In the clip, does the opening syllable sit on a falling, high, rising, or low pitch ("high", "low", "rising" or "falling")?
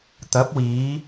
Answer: rising